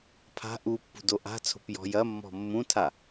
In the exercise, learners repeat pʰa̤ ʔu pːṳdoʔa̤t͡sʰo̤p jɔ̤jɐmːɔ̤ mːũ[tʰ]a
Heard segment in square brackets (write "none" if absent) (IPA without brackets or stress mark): tʰ